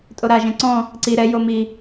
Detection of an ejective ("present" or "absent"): present